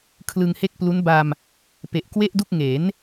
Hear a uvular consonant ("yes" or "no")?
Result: no